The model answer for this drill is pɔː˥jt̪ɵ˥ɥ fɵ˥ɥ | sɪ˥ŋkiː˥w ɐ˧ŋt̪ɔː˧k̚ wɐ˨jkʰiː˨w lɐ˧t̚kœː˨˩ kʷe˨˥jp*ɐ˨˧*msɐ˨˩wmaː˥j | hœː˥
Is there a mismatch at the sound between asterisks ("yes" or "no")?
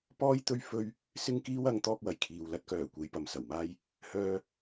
no